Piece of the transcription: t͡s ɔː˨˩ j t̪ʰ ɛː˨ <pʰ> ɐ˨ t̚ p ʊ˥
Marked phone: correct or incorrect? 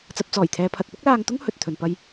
correct